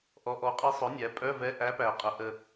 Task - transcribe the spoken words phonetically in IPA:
ʔ ɔ˩˧ ʔ ɔ˩˥ qʼ ɛ˧˥ sˤ œ˩˥ nʲ æ˩˧ pʼ œ˧˥˧ v ɛ˧˥ ʔ æ˧˥ p æ˨˩ qʼ ə˩˧ ʔ ə˨˩

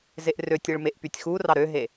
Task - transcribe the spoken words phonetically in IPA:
z e ʔ r ø tʲ e ɭ m e ʔ p y tʲ x u r ɑ ɾ ø ɦ e

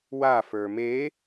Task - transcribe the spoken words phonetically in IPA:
w a f ə˞ m e

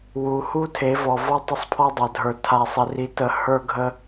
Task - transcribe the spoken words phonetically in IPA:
w u˨ h u˦ tʰ e˨˦ v ɔ˨ v ɔ˦ tˤ ə˦ sˤ pʰ ɔ˦ dˤ a˨ dʱ ə˞˨ tʰ a˨ sˤ ɪ˨ r i˨ t ə˨ h ə˞˦ ɡʱ ə˦

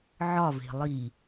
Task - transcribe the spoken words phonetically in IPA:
ʕ ɒ v e̤ lˠ i

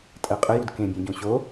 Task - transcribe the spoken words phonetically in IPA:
tʼ ɜ qʼ ə j u d k ẽ bʲ ẽ ɟ õ ɕ o

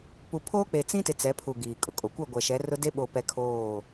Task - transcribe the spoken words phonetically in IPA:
p u˨ pʰ oː˦ k͡p e˨ t͡s ĩ˦ t ɪ˨ t͡s ɛ˨˦ pʰ u˨ ɡ iː˨ kʼ ʊ˨ kʼ o˨ kʷ ɛ˦˨ ɡʷ ɛ˨ ʃ ɛ˨˦ r ʊ˦ d e˦ ɓ o˨ p ɛ˦ kʰ oː˦˨

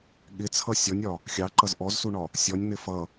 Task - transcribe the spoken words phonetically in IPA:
ɠ ɪ t͡sʰ ʌ sʲ ɔ nʲ ɒ | xʲ ɑ ǃ ʌ z ʔ ɔ z s u ɳ ɒ | sʲ ɔ nʲ n̪ ɪ f ʌ

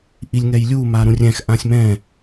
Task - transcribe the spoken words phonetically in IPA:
ʔ i lʲ ŋ ɛ j lʲ u m a ɾ ũ rʲ ɛ̃ x ʔ ã sʲ m ɛ̃

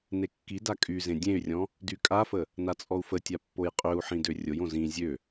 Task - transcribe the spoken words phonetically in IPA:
n e kː i d a kʼ y z ẽ dʲ ẽ y̯ rʲ ɔ̃ | d y kʼ a f ə | n a t͡sʼ ɔ u̯ f ə tʲ a pː o j qʼ ø u̯ ħ ĩ d ø rʲ o j õ z ĩ zʲ ø

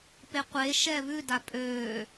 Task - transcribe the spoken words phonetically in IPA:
p e qʷ e ʃ ɛ β ʉ d a pʼ øː

